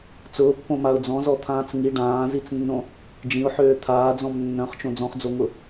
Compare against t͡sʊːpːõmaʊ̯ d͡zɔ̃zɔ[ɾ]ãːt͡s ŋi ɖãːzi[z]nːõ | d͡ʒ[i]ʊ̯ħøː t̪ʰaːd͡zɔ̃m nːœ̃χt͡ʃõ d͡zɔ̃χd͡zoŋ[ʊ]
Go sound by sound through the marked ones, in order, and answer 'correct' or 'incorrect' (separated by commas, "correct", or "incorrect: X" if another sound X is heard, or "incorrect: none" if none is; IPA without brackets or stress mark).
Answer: incorrect: t̪ʰ, incorrect: t͡s, incorrect: ĩ, correct